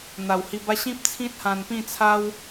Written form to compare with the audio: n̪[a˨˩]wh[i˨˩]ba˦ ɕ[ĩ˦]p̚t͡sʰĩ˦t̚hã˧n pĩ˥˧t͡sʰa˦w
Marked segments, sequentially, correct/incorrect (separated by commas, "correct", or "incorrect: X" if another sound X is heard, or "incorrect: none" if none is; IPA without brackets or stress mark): correct, incorrect: i˧, correct